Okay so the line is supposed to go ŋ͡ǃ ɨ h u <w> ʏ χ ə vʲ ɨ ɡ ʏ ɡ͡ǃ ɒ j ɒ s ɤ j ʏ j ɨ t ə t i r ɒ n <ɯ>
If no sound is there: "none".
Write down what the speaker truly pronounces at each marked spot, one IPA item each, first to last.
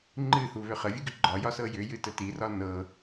β, ɤ

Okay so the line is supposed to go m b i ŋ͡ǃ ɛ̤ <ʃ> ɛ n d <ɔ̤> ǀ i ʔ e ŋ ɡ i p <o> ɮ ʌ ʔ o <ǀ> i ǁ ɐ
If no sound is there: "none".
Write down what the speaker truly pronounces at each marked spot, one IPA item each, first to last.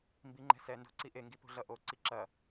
s, o̤, o̤, ǀ

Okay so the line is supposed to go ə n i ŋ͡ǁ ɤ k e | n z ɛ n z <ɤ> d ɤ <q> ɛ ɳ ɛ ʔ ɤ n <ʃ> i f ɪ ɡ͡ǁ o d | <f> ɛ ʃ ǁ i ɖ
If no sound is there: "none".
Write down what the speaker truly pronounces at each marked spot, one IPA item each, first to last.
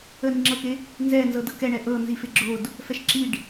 ɤ, k, z, f

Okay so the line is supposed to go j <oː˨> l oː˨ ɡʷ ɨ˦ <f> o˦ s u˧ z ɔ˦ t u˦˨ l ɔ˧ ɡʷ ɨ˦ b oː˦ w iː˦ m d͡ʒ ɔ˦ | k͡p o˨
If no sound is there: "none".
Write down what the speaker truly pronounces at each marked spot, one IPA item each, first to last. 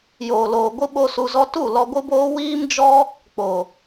oː˨, ɓ

